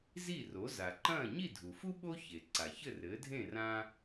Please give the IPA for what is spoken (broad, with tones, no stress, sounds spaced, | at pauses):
z i˥˩ r o˩˥ z a˩ ǃ ɐ̃ː˥˩ ɲ i˥˩ dʱ u˩ f u˥ ɓ o˥ ç e˩ ǀ a˩ ç ɘ˥˩ r ɘː˩˥ dʱ ẽ˥˩ r ã˥